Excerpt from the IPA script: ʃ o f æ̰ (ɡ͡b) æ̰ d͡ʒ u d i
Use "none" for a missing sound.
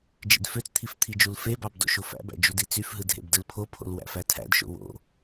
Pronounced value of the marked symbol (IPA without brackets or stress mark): b